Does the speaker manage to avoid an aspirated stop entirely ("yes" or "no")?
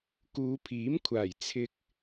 no